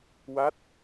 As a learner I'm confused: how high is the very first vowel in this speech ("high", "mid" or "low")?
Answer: low